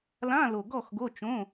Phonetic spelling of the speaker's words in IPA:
l ã˧˥˧ l o˨˩ ɡ ɔ˥˨ x ɡ o˧˥˧ t͡ʃ õ˧˥˧

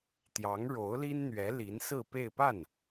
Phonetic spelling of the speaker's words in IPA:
t̪ j ɑ˧˥ ŋ ɻ o˧˥ ʊ̯ l i˥ n n̪ ɥ ɛ˧˥ l i˧˥ n s ɹ̩˥˧ p e˥˧ ɪ̯ p a˥˩ n

